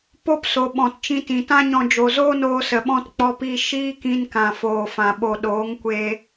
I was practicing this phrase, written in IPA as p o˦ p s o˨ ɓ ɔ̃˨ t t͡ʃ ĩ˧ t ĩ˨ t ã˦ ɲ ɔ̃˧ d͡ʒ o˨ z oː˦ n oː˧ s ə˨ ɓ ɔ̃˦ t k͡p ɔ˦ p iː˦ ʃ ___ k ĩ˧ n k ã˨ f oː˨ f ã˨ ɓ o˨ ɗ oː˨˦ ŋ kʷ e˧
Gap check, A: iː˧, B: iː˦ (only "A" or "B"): B